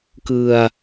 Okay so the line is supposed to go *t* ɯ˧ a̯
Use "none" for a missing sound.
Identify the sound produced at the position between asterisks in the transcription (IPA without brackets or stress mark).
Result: k